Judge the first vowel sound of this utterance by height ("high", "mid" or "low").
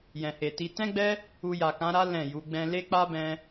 mid